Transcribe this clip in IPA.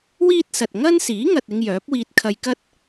w iː˥ t̚ s ɐ˨ t̚ ŋ ɐ˥ n s iː˨˥ ŋ ɐ˨ t̚ ɪ˧ ŋ j œː˨˥ p̚ w iː˧ t̚ kʰ ɐ˧ j k ɐ˥ t̚

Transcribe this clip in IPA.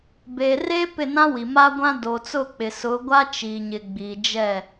b eː˨ r eː˦ p ɪ˦˨ n ã˦ w i˨ m a˦ ɡʷ ã˦ d o˨ t͡s ʊ˦˨ k͡p ɪ˨ s ʊ˨˦ ɡʷ a˦ t͡ʃ iː˨ ɲ ɪ˨ ɡ͡b i˨ d͡ʒ ɛ˦˨

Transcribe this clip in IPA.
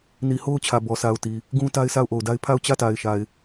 n i˨ h o˦ ʊ̯ t͡ɕʰ ä˨ b ɔ˨ s a˨ ʊ̯ t i˨ | ɡ ũ˦ t a˦ ɪ̯ sʰ a˦˨ ʊ̯ ʔ o˨ ʊ̯ d a˦ ɪ̯ pʰ a˦˨ ʊ̯ t͡ɕ ä˦˨ t a˨ ɪ̯ ʃ a˨ ɪ̯

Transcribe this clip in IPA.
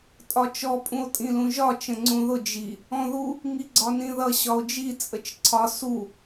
tʼ ɒ t͡ʃ ɔ pʼ ũ o̯ tʼ ĩ l ũ ʒ ɒ t͡ʃ ə̃ ŋ͡ǀ ũ ð ʊ d͡ʒ i | ɔ̃ ð u | ŋ i ɡ͡ǀ ɒ n ĩ ð ʌ ɕ ɒ o̯ d͡ʒ i t͡sʼ ə t͡ʃ ǀʰ ɒ s u

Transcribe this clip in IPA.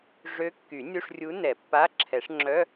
ʐ ø˧˥ kː y˨˩˦ nʲ u˧˥˧ ʂ rʲ u˧˥ n ɛ˨˩˦ pː a˧˥˧ ǁʰ ɛ˨˩˦ ʂ ŋ͡ǁ œ˧˥˧

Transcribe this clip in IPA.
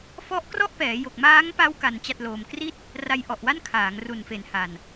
f ɔ˦˥ ʔ k r ɔ˥˩ ʔ p ɛː˩˦ j o˨˩ k̚ m aː˦˥ ŋ p a˦˥ w k a˧ n t͡ɕ a˥˩ t̚ l oː˧ m k r i˥˩ t̚ | r a˧ j ʔ ɔ˨˩ ʔ w a˥˩ n kʰ aː˩˦ ŋ r u˨˩ n f e˨˩ n h a˨˩ n

